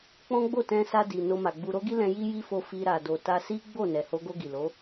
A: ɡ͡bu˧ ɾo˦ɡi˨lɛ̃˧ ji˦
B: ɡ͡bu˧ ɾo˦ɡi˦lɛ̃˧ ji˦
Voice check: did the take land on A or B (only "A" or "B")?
B